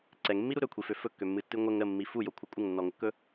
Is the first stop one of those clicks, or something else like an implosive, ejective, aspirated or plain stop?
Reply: click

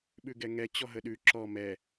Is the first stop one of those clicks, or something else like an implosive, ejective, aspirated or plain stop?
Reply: implosive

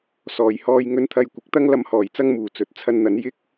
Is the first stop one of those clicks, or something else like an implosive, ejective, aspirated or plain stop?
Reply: aspirated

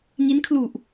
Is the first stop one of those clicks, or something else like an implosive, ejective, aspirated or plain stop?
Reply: aspirated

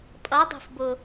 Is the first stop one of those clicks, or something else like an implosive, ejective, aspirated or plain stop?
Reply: ejective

